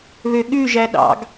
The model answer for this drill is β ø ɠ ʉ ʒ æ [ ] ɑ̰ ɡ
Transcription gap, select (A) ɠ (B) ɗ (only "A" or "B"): B